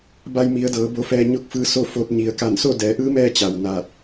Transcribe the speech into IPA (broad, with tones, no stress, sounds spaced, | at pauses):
b a˧ j m i˩˧ ə̯ d ɤː˩˧ b o˧ f ɛː˧ ɲ o˥˨ k̚ f ɯː˧ s o˥˨ f o˧ t̚ ɲ i˩ ə̯ k a˧˩ n s o˥˨ d ɛː˩˧ ʔ ɯː˧˥ m ɛː˧ t͡ɕ a˩ w n aː˧˩ t̚